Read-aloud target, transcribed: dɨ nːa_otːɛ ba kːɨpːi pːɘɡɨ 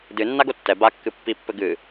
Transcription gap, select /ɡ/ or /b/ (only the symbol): ɡ